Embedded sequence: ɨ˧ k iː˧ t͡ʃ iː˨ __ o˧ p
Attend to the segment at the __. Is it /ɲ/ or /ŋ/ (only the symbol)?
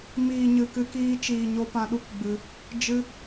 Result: ɲ